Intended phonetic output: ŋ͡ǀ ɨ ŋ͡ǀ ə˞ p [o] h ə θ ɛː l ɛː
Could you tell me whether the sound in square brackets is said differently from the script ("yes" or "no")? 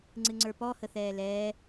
yes